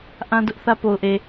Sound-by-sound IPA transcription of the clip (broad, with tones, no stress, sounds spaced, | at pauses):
ʔ ã˦ d ʊ˦ ʔ θ ä˦ p o˨ ʊ̯ ʔ e˨